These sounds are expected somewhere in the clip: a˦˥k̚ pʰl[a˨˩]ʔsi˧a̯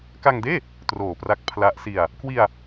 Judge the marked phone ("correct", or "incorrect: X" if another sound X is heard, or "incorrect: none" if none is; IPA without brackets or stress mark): incorrect: a˦˥